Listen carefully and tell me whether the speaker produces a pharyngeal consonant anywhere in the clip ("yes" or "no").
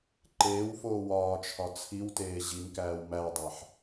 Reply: yes